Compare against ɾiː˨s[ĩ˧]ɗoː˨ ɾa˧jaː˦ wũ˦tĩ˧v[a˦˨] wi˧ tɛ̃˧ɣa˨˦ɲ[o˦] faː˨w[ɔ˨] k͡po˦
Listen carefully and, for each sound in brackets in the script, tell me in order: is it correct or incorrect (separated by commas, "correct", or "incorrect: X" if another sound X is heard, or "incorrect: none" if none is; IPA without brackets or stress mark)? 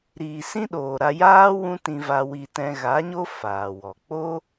incorrect: ĩ˦, incorrect: a˧, correct, correct